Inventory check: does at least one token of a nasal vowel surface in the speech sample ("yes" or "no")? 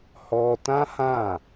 yes